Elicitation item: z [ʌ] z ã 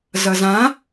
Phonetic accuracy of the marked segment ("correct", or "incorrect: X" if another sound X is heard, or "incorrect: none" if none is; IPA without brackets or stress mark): correct